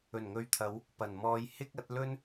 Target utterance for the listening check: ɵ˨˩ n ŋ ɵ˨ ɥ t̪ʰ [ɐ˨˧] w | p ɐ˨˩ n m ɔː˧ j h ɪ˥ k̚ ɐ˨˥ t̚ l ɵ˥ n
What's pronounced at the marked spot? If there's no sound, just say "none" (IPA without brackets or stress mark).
ɐ˨˧